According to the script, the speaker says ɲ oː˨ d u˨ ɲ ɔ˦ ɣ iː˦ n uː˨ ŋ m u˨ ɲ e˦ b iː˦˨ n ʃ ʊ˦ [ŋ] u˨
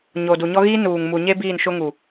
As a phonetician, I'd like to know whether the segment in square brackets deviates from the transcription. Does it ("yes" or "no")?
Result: no